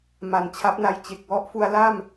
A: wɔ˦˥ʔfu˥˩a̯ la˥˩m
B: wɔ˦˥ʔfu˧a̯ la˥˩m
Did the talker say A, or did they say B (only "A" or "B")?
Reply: B